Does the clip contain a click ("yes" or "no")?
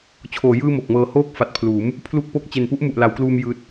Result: no